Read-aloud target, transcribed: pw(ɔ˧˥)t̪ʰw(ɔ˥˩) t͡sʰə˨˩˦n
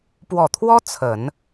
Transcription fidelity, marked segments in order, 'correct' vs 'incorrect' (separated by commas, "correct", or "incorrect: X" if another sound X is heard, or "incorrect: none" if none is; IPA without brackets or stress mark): incorrect: ɔ˨˩, incorrect: ɔ˥